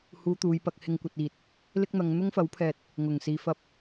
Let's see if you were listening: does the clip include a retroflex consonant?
no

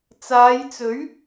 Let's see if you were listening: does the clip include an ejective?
no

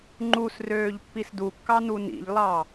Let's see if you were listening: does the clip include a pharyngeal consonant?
no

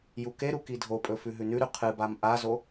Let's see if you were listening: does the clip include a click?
no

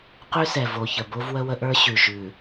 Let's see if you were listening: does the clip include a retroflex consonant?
no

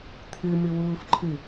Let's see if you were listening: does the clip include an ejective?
no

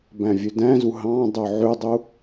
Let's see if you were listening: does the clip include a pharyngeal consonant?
yes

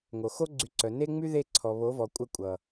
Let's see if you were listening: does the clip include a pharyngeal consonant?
no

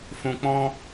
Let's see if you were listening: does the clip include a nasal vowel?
yes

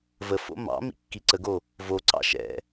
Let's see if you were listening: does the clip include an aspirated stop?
no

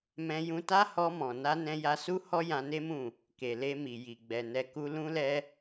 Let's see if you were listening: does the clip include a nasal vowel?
yes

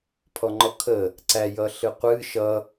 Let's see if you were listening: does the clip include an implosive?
no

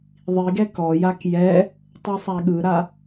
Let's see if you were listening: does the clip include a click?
no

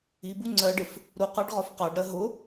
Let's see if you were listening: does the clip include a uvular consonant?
yes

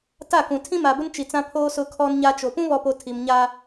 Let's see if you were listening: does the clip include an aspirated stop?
yes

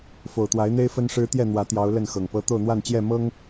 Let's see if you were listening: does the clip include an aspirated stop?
no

